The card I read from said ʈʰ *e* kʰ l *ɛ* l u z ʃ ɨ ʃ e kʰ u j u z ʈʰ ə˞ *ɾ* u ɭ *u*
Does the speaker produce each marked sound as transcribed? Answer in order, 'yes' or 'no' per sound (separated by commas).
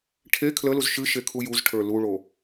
yes, no, no, no